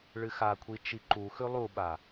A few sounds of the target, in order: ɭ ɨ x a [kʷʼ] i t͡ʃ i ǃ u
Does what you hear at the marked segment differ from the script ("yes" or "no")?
yes